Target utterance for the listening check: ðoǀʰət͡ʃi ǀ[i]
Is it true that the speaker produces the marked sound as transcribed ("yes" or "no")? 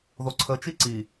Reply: yes